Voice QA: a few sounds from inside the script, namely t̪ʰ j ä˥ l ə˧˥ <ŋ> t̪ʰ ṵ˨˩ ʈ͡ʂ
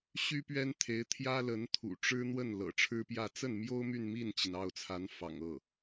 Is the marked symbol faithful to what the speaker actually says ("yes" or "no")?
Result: no